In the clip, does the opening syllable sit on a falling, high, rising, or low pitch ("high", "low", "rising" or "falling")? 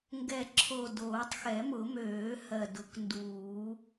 low